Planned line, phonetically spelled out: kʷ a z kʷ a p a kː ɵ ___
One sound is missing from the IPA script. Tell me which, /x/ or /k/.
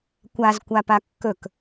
k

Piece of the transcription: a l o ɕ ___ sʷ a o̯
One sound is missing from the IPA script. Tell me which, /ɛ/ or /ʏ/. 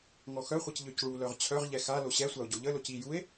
ɛ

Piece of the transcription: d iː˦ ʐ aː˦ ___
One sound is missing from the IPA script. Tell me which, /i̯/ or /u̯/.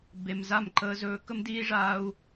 u̯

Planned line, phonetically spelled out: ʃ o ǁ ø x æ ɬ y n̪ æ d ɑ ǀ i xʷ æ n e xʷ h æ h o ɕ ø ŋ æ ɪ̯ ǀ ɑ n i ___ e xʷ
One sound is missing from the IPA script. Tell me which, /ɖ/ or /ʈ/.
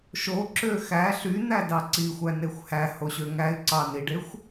ɖ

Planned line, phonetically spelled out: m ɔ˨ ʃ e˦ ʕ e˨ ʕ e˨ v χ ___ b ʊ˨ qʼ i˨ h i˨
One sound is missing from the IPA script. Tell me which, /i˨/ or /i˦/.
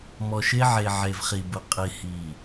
i˨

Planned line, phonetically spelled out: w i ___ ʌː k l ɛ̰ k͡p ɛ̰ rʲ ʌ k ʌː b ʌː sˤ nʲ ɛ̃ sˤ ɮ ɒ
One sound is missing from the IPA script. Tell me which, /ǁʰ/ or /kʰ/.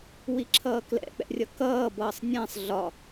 ǁʰ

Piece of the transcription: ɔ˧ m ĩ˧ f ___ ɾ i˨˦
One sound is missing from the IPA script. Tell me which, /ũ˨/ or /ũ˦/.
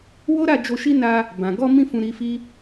ũ˨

